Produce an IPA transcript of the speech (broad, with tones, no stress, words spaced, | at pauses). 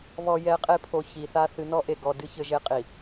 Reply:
βɔ˨jɛ˨˦qʼe˦˨pʰo˨ çi˨θa˦ θɨ˨nɔ˦ ʔe˨ɡɔ˨dɨ˦ çɘ˦ʒe˦qʼi˨